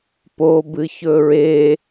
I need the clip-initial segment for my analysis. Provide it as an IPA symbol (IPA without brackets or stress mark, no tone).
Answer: p